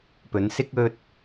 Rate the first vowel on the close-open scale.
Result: mid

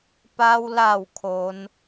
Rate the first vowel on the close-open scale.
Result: open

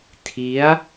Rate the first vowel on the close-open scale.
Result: close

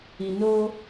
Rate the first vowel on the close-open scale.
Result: close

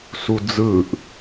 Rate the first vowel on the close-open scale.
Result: close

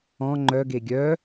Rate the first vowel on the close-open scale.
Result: mid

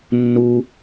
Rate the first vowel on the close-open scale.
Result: close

